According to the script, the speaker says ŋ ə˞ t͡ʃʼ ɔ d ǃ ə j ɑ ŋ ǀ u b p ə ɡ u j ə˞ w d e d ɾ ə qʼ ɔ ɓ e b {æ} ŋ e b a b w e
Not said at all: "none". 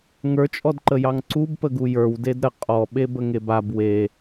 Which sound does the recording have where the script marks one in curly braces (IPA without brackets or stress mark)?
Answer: ə